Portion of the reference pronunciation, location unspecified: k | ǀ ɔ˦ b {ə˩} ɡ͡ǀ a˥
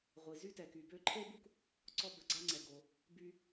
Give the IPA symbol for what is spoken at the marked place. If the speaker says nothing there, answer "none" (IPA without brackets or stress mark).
ə˨